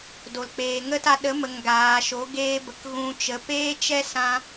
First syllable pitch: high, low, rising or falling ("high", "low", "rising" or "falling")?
low